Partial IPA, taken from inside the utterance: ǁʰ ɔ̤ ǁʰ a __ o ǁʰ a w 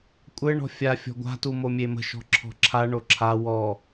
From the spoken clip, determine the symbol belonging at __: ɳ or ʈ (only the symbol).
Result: ɳ